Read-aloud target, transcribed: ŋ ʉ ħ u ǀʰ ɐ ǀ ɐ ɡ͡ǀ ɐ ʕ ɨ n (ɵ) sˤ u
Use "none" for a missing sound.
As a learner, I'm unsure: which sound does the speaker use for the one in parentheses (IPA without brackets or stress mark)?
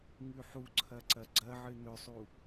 ɵ